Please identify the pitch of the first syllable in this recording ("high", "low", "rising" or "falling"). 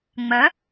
rising